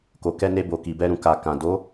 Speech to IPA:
ko˨ kɛ˧ne˧bo˨ki˨ bɛ˧ɾũ˨ ka˨kã˨ do˨˦

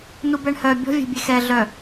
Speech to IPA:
nubɛɳhœ bʲɔ̤ vʲe̤bʲexɛ ɮœ

